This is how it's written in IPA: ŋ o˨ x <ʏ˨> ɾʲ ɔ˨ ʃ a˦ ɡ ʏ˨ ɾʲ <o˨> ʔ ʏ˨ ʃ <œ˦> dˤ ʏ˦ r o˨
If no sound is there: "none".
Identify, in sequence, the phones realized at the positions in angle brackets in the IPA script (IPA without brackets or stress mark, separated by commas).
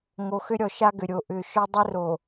ʏ˦, o˨, œ˦